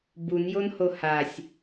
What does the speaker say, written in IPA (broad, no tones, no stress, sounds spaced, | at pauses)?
b u n j o n h o h a sʲ